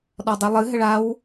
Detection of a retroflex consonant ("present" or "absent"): present